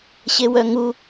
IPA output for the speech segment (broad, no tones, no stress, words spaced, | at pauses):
ɕewœŋu